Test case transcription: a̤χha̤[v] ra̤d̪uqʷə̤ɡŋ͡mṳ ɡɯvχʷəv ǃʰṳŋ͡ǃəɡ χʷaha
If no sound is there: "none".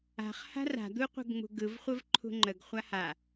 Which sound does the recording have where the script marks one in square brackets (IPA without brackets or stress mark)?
none